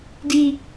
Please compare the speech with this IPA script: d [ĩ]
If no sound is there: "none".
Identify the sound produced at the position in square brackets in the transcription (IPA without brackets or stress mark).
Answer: i